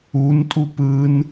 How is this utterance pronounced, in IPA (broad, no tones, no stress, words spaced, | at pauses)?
untʼu pɯn